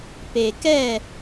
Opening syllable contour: low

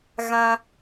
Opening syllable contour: high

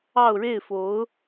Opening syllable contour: falling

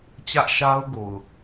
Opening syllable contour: high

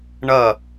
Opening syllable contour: falling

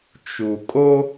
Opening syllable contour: low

